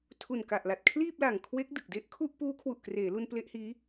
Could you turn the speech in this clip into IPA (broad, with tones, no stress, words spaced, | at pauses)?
tʰu˨˩nka˨˩ʔ la˨˩t̚kʰliː˥˩p̚la˨˩ŋ kʰwe˦˥k̚ dɯ˨˩k̚ de˥˩ʔkʰu˥˩ʔ puː˦˥kʰwu˨˩ʔkreː˩˦lu˧n ple˦˥ʔhiː˦˥